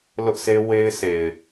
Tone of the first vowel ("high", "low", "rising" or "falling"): high